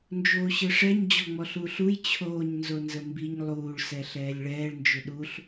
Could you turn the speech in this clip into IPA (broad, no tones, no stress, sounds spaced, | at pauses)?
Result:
n d͡ʒ oː ɕ ɘ ʂ ɛ ɲ d͡ʑ ɔ ŋ͡m ɔ ɬ uː ɬ u j t͡ɕʰ oː ɲ n z o n z ə m b i ɲ lˠ uː ɭ s ɛ ɬ ɛː lʲ ɭ ɛː ɭ n d͡ʒ ʏ ɗ u ɬ